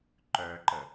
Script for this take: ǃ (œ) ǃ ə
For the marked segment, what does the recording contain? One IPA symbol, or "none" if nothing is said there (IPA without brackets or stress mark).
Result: œ